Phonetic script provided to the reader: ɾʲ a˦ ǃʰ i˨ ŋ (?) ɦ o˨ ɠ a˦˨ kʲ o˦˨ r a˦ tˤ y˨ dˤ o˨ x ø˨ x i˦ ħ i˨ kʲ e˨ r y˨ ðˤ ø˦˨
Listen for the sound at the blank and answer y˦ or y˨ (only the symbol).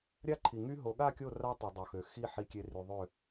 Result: y˦